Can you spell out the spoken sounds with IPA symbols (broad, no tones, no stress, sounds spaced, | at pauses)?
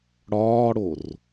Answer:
ɽ ɒː ɽ o r